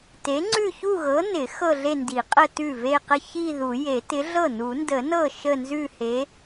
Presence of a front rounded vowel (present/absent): absent